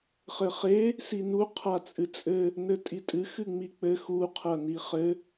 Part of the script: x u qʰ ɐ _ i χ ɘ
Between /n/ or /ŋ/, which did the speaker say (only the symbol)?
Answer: n